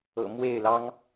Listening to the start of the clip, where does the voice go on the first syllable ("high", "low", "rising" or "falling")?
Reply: low